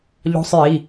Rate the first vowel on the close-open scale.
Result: mid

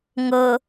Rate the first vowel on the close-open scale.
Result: mid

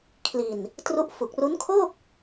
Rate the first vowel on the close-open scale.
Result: close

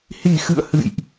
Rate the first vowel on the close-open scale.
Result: close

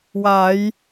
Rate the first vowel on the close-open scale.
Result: open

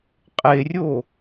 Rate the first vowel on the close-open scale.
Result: mid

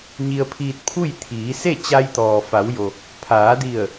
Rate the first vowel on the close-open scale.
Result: close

